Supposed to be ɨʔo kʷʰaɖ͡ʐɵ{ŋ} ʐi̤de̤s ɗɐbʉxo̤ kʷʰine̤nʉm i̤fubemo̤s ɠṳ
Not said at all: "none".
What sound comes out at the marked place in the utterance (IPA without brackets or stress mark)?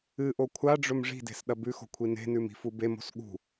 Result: m